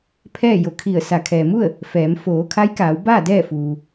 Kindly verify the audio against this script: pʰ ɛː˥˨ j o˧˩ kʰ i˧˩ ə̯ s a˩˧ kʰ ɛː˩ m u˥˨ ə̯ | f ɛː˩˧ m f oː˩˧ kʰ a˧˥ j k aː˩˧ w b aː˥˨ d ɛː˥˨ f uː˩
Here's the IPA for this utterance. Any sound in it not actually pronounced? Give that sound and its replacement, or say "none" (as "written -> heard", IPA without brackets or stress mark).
none